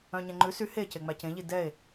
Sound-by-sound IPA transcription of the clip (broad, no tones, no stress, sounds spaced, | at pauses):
œ̃ ɲ ɛ̃ ŋ͡ǃ ʉ s y h e c e ŋ͡m æ c ẽ ʎ i d ɛ e̯